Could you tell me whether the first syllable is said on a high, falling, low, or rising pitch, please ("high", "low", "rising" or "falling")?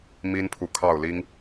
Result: high